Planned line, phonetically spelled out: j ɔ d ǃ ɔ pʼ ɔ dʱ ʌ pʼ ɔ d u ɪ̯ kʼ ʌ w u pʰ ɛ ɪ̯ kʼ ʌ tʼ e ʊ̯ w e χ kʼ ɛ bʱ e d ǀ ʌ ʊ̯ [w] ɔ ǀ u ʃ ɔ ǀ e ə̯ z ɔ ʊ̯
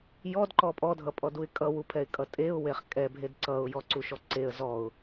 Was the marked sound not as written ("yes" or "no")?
yes